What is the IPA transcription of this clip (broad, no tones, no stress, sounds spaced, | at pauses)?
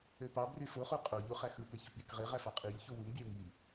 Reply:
ø p ɑ b r y f o χ u qʼ o ʎ u χ æ x ɯ p e ç ø p j y k ʁ e ʁ æ f ɑ qʼ i ʎ ç u w u m bʲ æ m i